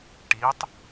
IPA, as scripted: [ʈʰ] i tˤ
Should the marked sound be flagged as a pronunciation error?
yes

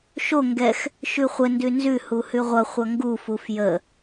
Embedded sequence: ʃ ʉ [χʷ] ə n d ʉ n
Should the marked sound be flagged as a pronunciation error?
no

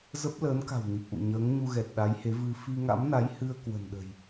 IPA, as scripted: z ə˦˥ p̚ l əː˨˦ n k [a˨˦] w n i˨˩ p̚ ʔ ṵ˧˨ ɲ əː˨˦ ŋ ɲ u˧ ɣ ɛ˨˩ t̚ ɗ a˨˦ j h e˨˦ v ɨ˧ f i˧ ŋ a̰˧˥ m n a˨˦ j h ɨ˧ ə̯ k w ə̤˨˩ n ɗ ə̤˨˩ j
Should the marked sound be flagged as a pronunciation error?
yes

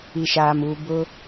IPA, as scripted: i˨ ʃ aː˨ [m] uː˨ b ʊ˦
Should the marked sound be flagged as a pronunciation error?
no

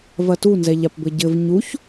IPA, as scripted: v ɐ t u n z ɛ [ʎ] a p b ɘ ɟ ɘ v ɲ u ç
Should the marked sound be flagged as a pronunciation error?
no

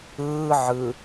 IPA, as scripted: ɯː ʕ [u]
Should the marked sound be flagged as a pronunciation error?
yes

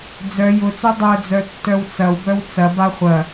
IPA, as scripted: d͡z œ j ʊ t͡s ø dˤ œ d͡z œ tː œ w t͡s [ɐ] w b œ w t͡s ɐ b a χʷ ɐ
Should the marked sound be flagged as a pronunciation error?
no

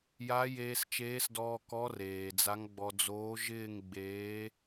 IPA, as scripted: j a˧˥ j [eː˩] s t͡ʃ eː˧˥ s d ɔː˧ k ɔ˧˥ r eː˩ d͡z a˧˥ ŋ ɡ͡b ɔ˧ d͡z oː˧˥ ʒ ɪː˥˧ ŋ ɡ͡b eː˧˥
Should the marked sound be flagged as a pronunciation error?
yes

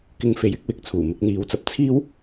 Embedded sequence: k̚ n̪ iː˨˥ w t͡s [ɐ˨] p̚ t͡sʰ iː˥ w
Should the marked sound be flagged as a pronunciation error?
yes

